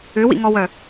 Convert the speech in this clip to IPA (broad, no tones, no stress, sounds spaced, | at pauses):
ʏ w ḭ ŋ ɔ w œ